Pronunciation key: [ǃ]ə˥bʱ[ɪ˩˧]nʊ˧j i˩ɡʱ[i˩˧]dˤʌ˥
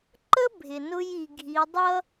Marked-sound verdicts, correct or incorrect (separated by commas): correct, incorrect, correct